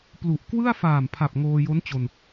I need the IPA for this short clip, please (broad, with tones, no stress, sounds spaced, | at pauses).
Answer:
p l u˨˩ ʔ k w ɯ˥˩ a̯ f aː˨˩ m pʰ a˨˩ p̚ ŋ oː˧ j o˦˥ n t͡ɕ o˧ n